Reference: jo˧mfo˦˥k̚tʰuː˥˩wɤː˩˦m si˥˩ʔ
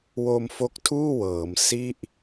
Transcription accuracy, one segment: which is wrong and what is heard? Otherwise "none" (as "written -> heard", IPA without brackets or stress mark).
j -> w